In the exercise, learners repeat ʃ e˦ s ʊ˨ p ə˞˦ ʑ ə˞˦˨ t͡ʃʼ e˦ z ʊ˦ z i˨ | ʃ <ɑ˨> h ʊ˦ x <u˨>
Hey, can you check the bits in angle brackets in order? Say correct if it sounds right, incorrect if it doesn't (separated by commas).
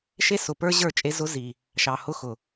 correct, incorrect